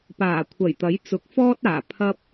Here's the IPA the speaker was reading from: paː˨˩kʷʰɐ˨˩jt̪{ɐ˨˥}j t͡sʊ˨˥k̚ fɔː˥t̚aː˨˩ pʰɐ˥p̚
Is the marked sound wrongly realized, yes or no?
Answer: no